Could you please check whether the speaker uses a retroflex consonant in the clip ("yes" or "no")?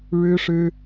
yes